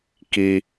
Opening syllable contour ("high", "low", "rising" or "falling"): low